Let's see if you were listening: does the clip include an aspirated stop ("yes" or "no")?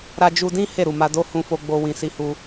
no